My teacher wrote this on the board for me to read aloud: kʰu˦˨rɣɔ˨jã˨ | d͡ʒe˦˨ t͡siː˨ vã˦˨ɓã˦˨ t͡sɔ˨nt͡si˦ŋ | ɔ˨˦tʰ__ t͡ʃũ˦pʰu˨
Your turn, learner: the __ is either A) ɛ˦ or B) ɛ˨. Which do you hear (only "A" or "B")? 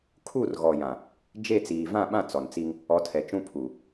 B